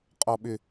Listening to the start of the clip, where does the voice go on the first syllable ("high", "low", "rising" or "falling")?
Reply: low